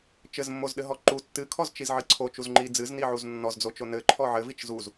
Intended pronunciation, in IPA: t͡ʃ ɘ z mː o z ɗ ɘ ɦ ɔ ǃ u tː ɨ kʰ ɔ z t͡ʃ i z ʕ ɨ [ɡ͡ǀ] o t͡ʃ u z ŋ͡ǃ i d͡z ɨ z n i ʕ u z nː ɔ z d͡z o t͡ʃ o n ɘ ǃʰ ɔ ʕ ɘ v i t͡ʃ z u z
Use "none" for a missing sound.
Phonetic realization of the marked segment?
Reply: ǀʰ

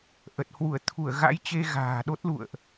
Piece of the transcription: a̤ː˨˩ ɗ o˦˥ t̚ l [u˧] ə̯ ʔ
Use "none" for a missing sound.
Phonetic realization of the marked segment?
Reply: ṵ˧˨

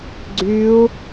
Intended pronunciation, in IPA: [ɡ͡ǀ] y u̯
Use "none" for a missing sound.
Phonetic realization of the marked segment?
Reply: ɡ͡ǀ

